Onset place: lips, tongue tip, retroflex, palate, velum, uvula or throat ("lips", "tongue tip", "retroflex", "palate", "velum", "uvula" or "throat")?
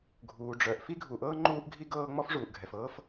velum